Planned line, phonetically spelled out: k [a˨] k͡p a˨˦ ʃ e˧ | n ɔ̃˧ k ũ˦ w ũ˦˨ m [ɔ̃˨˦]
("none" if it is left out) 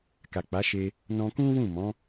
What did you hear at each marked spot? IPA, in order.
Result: a˨, ɔ̃˨˦

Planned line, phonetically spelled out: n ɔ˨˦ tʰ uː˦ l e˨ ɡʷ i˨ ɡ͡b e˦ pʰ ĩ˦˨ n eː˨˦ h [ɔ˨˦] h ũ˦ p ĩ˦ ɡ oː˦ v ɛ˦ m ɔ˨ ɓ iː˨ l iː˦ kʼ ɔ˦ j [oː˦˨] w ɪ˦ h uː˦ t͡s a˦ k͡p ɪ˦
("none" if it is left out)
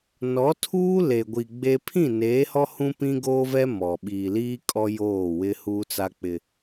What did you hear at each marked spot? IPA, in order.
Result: ɔ˦, oː˦˨

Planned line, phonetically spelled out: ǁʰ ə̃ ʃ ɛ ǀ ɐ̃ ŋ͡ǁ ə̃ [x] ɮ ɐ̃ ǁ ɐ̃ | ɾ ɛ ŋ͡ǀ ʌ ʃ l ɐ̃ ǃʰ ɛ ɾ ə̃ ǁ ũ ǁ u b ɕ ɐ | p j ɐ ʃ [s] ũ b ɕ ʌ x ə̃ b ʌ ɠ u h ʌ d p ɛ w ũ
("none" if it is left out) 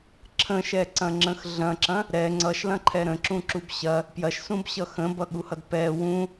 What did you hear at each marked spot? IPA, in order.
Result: x, s

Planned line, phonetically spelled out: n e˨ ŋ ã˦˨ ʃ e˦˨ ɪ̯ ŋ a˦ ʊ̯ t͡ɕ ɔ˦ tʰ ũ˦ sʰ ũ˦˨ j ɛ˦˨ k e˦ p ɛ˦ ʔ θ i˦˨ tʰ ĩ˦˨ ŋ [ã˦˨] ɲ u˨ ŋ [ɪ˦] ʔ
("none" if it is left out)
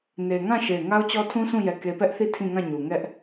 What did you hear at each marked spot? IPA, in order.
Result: ã˦˨, ɛ˦

